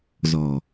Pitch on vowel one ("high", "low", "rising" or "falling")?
low